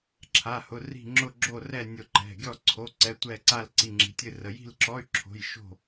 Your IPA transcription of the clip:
ǁʰa˧˥˧hʊ˧˥˧ri̤˥˧ ŋ͡ǁʊ˥˧ɡ͡ǁo˥˧rɛ˥˧ nʲʊ˥˧ǃɛ̤˧˥˧ ɡʲɔ˥˧ǀʰo˧˥˧ ǀɛ˧˥˧tʷɛ˥˧ǀa˥˧l ǀi˧˥˧ŋ͡ǁi̤˧˥˧tʲɨ˥˧rə˧˥˧ ji̤˥˧lǁɔ˧˥˧y̯ ǁʰo̤˧˥˧jʃo̤˥˧

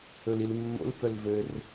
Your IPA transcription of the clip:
ɵlilmːo̰l pœlvɘr

